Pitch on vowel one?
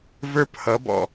high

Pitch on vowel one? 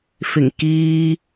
low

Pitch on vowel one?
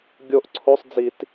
falling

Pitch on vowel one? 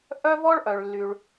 high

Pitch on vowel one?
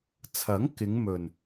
rising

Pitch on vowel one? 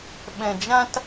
low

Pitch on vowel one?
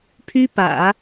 high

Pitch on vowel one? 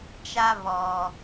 high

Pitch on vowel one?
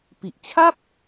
low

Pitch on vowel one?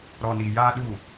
low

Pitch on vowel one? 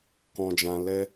low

